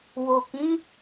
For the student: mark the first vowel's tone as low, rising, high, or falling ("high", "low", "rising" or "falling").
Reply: low